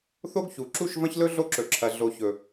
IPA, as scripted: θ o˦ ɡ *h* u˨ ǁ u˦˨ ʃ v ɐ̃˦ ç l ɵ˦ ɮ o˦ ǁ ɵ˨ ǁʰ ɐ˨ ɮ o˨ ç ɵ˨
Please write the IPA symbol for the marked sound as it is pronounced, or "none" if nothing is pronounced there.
ç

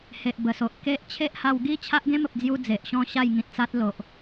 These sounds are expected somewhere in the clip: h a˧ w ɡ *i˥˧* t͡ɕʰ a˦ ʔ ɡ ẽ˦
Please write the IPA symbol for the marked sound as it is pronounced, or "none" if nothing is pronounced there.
i˦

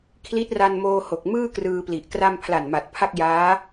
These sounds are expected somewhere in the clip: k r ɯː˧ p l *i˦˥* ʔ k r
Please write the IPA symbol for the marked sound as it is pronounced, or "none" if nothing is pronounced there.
i˨˩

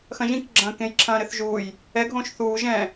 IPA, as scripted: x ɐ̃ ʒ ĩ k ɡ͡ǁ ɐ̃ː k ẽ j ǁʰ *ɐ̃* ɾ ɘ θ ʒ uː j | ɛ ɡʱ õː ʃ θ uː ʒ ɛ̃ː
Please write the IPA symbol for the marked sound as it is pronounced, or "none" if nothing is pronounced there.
ɐ̃ː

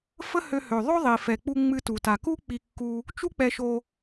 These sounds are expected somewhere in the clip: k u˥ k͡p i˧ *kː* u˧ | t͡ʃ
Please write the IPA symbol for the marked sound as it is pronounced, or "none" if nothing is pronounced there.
kː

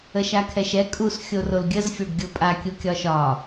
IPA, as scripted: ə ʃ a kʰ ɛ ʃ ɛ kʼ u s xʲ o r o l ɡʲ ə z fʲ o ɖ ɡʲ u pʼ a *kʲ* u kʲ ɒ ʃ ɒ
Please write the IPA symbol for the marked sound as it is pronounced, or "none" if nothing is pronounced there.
kʲ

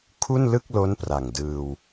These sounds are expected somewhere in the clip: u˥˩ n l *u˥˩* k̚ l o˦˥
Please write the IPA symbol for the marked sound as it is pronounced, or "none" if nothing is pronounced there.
ɯ˥˩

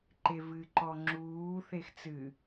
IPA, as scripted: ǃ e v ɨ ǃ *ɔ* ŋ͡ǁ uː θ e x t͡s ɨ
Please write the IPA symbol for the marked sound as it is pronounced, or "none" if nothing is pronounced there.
ɔ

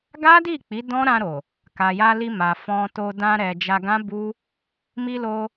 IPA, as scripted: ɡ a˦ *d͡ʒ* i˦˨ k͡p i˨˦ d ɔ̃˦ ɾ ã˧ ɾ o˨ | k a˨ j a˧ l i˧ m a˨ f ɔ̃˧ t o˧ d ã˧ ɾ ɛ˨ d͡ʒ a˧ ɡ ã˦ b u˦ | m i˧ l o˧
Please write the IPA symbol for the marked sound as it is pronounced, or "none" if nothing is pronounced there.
d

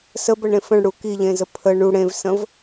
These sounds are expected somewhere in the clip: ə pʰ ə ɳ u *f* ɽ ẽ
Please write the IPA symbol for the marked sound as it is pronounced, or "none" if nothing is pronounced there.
none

